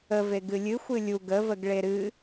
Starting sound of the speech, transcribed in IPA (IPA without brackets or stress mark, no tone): ə